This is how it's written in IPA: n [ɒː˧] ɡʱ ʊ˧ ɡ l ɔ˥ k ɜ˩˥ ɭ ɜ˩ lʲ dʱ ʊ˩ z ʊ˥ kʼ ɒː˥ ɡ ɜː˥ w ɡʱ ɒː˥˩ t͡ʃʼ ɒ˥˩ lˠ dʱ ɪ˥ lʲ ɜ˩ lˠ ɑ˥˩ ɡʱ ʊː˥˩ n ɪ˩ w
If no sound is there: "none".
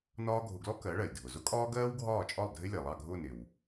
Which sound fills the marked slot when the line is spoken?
ɒː˥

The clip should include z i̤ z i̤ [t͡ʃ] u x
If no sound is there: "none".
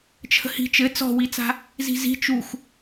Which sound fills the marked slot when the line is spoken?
t͡ʃ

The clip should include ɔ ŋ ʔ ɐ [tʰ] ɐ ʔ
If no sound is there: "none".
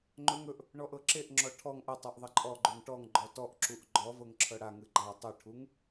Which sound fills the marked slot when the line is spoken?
tˤ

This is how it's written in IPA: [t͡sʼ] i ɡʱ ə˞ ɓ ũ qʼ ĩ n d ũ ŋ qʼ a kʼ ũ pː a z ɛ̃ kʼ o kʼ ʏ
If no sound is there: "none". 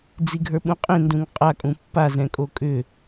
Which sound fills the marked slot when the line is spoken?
d͡z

